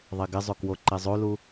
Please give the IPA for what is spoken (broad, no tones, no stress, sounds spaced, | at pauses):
ðˤ e ɡ ɪ zˤ o k w o ǃ e zˤ o l u